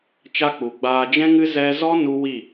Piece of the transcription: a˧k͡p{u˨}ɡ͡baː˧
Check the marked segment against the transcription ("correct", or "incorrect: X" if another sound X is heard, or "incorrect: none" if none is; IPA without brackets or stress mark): correct